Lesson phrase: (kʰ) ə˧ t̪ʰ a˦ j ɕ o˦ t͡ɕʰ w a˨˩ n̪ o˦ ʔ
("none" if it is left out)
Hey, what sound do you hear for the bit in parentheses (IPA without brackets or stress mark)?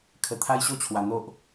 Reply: kʰ